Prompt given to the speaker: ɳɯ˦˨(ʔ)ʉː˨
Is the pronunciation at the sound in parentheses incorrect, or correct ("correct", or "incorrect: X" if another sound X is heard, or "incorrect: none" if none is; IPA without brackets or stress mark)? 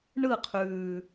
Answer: incorrect: qʰ